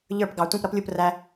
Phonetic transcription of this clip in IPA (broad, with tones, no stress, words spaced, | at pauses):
ʎə˞˦˨pɡɑ˨˩˦ tʷĩ˦˨pɾʌ˦plʲu˦˨p ræ˦